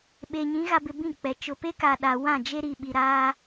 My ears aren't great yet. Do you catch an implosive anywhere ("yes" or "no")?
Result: yes